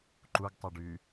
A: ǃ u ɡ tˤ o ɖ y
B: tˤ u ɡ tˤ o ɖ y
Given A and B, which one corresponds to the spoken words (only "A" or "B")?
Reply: A